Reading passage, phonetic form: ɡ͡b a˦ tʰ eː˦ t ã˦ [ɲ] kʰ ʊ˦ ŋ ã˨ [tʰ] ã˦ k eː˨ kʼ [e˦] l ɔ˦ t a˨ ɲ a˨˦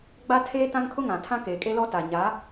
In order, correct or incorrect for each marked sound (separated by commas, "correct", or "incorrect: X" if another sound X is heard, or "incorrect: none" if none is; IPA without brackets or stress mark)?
incorrect: ŋ, correct, correct